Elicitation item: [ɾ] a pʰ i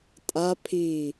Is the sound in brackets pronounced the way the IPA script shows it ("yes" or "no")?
no